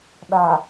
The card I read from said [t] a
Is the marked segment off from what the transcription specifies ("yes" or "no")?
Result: yes